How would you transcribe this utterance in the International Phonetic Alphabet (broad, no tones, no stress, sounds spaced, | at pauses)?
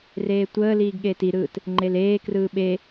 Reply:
r eː tʷ əː l iː ɡ ɠ eː t i ɾ ɯː t | ŋ͡ǃ e l eː k r ɯː ɓ e